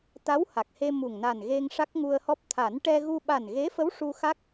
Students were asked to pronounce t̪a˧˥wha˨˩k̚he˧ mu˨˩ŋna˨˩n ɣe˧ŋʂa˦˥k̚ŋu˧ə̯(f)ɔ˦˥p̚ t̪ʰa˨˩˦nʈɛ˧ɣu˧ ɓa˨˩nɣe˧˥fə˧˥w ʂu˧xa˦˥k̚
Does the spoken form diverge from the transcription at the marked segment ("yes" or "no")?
yes